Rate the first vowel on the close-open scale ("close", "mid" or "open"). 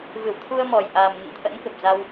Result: close